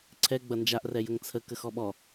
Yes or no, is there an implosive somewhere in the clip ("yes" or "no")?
yes